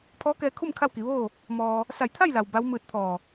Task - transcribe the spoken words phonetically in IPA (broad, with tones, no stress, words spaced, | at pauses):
pʰɔː˧˥kɛː˧kʰu˥˨m kʰa˥˨wki˩˧ʋoː˥˨ | mɔː˧ | sa˧˩jt̪ʰa˥˨jla˩w ba˧˥w mɯː˧t̚t̪ʰɔː˧˩